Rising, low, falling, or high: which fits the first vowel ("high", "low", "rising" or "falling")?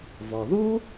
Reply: low